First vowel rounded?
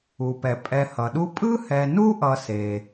yes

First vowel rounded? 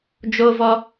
yes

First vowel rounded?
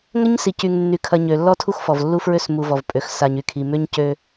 no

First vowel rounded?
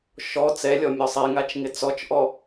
yes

